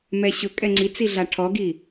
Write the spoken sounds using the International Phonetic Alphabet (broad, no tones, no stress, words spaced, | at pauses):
mɛɕʊ kʼɛŋ͡ǀit͡siɮa ʈʰɔɡi